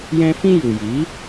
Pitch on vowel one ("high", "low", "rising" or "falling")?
high